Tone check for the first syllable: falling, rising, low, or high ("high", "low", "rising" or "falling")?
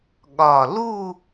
low